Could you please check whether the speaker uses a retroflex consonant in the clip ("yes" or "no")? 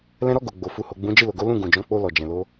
no